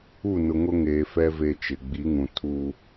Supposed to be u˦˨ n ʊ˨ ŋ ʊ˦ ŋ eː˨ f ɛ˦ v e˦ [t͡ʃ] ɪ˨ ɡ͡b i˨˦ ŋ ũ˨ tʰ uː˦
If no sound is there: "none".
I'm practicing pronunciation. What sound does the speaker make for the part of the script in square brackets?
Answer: t͡ʃ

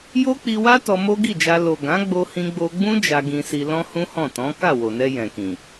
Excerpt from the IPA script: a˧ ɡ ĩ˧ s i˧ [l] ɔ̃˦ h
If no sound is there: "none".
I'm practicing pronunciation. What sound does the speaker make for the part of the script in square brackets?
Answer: l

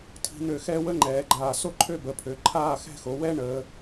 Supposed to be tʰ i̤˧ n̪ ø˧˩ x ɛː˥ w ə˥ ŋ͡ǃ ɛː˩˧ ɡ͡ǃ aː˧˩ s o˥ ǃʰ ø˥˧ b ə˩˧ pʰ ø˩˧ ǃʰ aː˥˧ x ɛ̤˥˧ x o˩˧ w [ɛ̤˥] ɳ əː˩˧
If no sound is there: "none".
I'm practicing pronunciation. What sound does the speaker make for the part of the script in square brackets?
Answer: ɛ˥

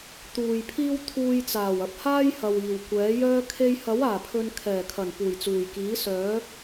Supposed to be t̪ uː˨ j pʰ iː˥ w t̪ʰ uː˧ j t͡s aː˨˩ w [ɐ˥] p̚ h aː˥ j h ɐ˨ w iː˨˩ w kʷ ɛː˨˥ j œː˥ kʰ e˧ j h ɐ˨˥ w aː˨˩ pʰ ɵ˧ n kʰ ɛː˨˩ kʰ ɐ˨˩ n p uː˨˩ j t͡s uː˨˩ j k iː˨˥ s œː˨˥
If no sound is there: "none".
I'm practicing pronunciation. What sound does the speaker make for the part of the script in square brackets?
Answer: ɐ˧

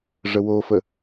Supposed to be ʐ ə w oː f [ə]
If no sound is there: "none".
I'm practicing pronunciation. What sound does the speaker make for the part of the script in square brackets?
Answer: ə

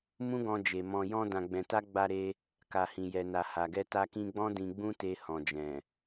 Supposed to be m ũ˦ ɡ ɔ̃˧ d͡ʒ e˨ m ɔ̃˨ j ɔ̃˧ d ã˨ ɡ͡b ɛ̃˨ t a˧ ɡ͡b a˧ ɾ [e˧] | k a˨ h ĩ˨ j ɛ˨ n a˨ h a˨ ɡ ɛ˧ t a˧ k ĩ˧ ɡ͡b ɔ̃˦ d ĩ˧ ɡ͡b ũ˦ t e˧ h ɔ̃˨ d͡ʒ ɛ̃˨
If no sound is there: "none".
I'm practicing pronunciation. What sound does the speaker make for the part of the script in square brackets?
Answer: e˧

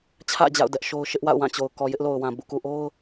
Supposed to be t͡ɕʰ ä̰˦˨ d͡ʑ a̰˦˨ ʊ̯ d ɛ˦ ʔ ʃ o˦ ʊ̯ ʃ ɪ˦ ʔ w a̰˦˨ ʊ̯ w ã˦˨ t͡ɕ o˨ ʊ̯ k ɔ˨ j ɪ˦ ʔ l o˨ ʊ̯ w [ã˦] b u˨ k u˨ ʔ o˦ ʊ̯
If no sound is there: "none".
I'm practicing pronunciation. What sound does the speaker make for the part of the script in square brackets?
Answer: ã˨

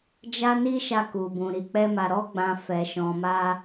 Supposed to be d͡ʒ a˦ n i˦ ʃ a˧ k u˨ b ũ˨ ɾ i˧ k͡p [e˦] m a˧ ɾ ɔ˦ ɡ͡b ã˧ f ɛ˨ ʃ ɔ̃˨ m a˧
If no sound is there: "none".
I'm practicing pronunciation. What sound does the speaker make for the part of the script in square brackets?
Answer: ɛ˦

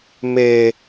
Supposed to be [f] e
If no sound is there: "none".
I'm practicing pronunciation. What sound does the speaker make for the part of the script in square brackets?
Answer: m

